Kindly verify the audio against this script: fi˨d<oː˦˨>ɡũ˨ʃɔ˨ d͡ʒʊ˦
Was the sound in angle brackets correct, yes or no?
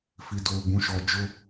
no